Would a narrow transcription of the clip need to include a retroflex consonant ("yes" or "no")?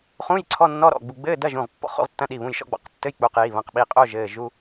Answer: no